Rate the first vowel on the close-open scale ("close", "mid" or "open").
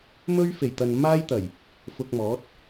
mid